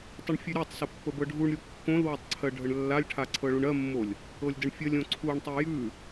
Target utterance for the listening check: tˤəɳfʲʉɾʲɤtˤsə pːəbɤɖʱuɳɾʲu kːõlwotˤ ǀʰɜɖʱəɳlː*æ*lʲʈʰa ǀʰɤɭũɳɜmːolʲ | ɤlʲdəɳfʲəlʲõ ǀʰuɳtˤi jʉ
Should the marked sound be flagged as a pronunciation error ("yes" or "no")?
yes